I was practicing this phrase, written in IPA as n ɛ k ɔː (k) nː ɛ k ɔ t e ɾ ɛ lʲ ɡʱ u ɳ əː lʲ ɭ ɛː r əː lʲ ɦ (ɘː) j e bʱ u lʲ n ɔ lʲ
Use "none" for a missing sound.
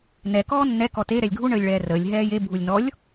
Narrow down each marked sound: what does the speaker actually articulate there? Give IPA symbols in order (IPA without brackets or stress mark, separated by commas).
none, ɛː